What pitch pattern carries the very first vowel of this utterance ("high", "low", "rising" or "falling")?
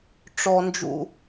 low